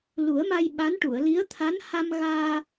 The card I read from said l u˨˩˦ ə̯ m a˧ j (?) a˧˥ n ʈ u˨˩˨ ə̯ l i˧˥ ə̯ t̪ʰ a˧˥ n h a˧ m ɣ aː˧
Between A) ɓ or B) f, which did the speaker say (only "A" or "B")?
A